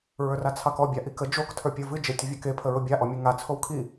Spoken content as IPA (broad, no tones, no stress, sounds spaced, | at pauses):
ɹ ə˞ r a t͡sʰ ɑ k ɔ bʲ a ʔ i k ə d͡ʒ o k tʰ ə˞ pʲ ə˞ v ɨ d͡ʒ e tʲ ʊ vʲ a k e pʰ ə ɹ ʊ bʲ a ʔ ɔ mʲ ɨ ŋ a t͡sʰ o w kʰ i